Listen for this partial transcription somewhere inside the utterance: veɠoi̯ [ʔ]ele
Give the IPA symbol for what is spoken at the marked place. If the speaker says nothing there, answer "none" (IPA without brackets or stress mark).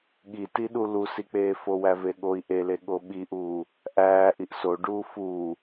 ʔ